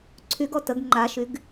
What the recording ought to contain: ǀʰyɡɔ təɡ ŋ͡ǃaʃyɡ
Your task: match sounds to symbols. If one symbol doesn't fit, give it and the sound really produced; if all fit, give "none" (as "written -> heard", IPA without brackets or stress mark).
none